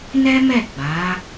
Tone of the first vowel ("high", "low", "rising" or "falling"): high